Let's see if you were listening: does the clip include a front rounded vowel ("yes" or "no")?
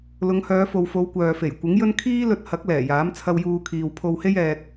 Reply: yes